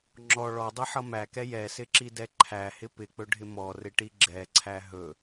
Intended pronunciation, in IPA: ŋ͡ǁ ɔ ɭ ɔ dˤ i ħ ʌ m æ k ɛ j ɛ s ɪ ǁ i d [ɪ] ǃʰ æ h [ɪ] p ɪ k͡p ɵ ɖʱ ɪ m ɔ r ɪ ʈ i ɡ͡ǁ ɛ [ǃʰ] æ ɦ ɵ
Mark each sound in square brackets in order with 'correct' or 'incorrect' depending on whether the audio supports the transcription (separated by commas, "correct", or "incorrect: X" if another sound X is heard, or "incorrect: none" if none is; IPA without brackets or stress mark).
incorrect: ɛ, correct, incorrect: ǀʰ